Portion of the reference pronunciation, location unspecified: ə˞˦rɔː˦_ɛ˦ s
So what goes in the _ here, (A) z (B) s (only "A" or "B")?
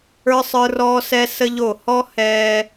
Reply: B